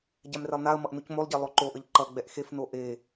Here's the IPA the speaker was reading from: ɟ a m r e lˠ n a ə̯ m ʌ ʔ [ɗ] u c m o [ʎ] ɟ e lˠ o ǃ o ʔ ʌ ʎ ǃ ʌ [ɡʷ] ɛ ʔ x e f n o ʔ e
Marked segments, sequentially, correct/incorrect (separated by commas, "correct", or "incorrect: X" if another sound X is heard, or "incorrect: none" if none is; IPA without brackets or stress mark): incorrect: n, incorrect: lˠ, incorrect: ɡ͡b